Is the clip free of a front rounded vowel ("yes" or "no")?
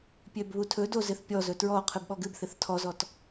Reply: no